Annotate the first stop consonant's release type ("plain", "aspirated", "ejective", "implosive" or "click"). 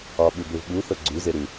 implosive